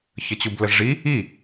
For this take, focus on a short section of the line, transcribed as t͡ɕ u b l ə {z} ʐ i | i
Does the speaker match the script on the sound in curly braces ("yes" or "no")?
yes